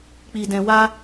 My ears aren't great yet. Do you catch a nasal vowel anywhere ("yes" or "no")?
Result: yes